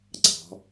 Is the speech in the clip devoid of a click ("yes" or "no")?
no